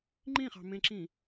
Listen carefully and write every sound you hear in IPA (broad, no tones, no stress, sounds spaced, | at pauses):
ŋ͡ǃ ĩ χ ɑ̤ m ẽ ǁ ĩ